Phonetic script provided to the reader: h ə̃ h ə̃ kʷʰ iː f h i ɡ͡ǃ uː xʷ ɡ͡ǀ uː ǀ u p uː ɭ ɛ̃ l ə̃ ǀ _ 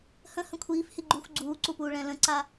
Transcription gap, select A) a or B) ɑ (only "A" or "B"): A